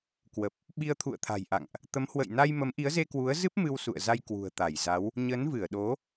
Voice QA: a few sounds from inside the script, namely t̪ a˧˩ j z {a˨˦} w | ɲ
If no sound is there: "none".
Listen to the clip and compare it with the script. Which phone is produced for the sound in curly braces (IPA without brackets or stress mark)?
a˨˦